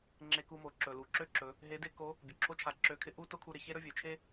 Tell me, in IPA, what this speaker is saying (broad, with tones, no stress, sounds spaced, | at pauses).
ŋ͡ǁ e˧ k u˧ m o˩ ǁ ɵ˩ l u˩˧ ǁ ø˥ ǁ ɵ˩˧ | ɦ e˧˥ d e˥ k o˧˥ | bʲ ɵ˩ ǁʰ o˧˥ t͡ʃʰ a˩˧ ǁ ø˧˥ kʰ ɪ˥ ʔ u˥ t o˥ kʰ u˧ ɾ ɪ˩ ç e˥ ɾ ɵ˥ vʲ ø˩ t͡ʃʰ e˥